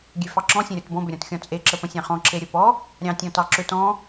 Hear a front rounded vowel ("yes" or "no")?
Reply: yes